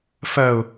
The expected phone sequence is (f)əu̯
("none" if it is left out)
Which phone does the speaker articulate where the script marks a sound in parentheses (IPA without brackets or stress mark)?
f